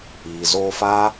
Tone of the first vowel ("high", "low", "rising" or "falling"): low